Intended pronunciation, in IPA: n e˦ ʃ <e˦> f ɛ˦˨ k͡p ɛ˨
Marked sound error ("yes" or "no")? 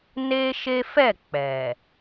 no